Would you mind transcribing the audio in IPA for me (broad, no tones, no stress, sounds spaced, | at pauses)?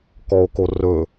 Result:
k ɔ o̯ k o r ɵ